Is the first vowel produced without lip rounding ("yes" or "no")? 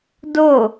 no